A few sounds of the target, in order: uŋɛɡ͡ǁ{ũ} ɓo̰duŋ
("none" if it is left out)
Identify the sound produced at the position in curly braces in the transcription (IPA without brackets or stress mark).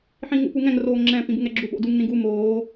u